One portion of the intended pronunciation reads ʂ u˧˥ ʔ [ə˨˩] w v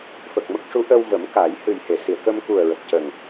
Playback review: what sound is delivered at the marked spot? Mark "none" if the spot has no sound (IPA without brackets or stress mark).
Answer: ə˧